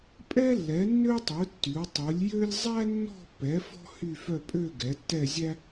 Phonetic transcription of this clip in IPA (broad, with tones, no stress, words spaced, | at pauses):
pʼɛ˥lːɛ˩˥ nːø˥tˤu˩˥ tːy˩˥wtˤu˩˥lʲ jø˥lʲ zˤæ˥nːɔ̤˥˧pːɛ˩˥ fɔ̤˥ hy˥˧fœ˥˧ pʼø˥˧ ɡɛ˩˥tːɛ˥˧zʲæ˥